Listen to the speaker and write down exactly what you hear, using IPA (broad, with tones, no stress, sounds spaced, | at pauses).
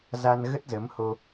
z a˧ n ɣ ə˦˥ t̚ z ə˨˦ m h o˧